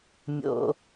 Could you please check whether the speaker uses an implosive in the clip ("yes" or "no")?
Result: no